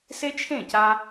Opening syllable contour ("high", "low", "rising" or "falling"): high